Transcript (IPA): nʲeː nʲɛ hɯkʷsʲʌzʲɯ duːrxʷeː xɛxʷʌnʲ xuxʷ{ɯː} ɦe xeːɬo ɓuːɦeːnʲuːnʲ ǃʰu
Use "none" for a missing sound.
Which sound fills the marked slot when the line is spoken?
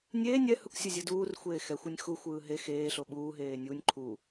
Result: ɯː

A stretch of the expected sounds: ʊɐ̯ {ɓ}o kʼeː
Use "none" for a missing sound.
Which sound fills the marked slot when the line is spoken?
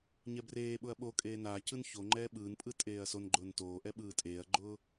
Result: ɓ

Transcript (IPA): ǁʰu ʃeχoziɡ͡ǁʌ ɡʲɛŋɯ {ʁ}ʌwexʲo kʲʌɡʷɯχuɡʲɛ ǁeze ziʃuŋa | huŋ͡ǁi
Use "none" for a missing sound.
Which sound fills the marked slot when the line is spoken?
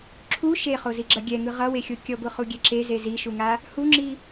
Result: ʁ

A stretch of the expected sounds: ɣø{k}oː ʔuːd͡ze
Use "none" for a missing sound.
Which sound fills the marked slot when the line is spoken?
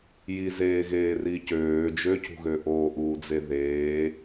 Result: ʔ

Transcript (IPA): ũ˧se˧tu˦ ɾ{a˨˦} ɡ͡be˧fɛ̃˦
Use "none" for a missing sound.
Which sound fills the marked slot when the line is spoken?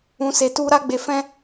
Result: a˦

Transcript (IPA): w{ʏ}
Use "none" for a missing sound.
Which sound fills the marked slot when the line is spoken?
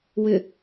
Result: ʏ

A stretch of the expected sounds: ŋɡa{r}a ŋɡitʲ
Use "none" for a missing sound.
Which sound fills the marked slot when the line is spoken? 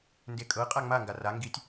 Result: r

